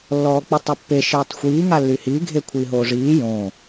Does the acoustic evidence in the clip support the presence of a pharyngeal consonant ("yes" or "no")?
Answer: no